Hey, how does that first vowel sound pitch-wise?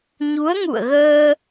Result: rising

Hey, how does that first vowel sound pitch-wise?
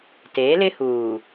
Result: rising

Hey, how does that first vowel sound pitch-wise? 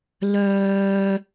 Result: high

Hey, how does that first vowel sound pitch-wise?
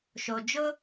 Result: low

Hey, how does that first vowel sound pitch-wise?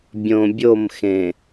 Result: low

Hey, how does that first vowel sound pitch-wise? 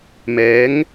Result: rising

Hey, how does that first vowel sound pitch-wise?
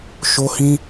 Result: high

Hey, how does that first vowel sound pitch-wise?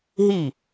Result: falling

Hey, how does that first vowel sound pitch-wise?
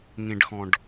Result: low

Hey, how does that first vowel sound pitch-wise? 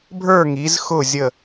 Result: falling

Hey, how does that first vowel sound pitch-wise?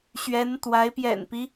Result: rising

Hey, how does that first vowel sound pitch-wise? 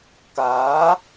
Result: rising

